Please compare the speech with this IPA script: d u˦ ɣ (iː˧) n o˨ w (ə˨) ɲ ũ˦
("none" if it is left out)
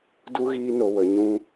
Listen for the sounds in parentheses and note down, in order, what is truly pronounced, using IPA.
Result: iː˧, ə˨

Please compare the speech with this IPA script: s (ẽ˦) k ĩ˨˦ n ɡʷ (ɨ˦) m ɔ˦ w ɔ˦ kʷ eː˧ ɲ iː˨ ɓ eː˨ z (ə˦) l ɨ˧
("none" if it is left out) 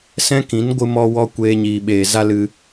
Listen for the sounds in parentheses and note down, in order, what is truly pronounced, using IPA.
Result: ɛ̃˦, ɨ˦, a˦

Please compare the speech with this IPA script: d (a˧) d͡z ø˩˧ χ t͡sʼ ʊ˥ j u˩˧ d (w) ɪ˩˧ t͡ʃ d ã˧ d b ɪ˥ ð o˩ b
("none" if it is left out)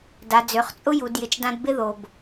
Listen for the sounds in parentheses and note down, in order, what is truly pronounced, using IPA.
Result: a˩˧, j

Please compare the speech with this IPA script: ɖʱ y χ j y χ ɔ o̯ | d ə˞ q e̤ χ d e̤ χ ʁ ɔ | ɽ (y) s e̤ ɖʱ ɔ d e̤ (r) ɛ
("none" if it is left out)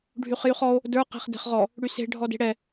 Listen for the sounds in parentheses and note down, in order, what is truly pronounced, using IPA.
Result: y, ɽ

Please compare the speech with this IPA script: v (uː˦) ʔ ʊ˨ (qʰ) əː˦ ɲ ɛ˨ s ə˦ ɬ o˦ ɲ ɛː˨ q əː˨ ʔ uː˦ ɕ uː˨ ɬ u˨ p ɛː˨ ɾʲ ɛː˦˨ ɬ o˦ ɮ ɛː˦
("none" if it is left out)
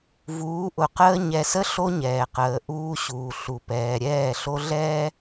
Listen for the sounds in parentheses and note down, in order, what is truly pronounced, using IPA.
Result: uː˨˦, q

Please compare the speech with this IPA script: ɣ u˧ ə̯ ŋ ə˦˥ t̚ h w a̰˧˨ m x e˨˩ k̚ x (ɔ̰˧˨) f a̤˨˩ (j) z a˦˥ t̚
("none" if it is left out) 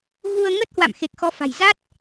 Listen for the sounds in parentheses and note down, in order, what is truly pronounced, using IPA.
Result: ɔ˨˦, j

